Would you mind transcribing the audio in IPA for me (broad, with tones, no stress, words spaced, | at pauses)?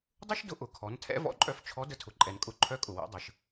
dˤʊ˥ʃdʊ˧˥ ʔʊ˩˧kʰɔ˩˧ntʰɛ̰˧˥ vɔ̰˧ǃʼœ˧f t͡ʃʰɔ˧˥ də˧tʰʊ˩ǃʼɛ˩n kʼʊ˧ ǃʰœ˧˥kʼʊ˩wɛ̰˩˧ dˤə˩ʃ